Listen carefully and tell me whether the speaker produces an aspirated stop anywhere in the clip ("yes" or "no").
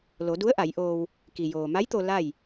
no